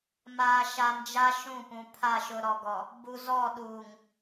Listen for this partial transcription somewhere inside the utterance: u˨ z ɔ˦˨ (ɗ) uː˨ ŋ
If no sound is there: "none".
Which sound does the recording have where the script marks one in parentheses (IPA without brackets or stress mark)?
ɗ